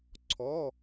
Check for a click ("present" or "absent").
present